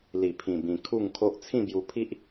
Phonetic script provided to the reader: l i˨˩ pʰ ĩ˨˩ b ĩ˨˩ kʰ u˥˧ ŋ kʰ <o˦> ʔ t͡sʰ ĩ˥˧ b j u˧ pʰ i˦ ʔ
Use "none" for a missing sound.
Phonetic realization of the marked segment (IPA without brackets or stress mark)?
o˦